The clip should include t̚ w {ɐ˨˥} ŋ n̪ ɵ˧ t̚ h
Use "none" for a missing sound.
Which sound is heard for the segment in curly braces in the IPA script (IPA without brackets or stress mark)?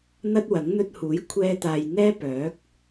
ɐ˨˥